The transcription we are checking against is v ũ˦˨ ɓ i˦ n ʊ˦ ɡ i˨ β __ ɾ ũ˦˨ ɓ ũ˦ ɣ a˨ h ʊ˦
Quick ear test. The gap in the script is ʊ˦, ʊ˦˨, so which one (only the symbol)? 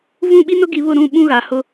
ʊ˦˨